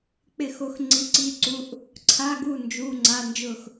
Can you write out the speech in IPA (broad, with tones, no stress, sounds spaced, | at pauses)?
k͡p ɪ˥˨ x o˧˥ x ŋ͡ǀ i˧˥ ǀ i˧˥˧ ǀ u˧˥˧ ʔ | ǀʰ a˧˥˧ ɡ u˥˨ n d͡ʒ u˧˥˧ ŋ͡ǀ a˧˥˧ n d͡ʒ ʊ˥˨ x